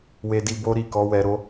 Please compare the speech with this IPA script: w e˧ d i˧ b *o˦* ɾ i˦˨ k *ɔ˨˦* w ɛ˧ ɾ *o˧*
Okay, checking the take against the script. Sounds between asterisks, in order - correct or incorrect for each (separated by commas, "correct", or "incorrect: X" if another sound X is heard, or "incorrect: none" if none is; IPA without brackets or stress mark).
correct, correct, correct